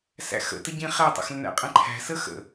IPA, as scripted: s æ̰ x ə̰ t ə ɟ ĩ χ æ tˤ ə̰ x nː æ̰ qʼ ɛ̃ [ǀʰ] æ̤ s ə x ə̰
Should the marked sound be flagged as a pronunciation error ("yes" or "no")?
yes